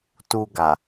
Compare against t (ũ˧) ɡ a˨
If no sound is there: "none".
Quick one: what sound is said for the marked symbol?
u˧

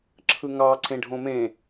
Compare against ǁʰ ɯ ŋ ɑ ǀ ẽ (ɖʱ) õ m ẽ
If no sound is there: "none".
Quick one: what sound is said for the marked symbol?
ɖʱ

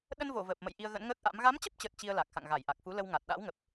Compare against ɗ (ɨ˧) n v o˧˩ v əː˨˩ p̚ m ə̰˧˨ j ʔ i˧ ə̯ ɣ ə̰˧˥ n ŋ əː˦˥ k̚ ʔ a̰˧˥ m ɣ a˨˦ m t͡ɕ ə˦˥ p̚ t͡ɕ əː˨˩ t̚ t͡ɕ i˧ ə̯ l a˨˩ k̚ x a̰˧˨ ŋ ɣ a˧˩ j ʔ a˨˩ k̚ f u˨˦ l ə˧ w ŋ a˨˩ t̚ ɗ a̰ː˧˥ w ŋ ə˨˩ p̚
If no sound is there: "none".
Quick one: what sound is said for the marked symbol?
ə˧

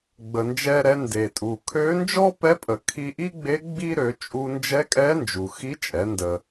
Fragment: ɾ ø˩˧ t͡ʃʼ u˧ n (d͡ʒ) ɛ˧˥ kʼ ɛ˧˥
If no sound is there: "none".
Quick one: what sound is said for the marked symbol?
d͡ʒ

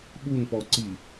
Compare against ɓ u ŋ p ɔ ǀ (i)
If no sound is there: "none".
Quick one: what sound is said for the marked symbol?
i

